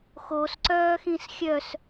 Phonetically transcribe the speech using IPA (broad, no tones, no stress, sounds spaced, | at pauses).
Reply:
x o s ǀ œː x ĩ s xʲ œ s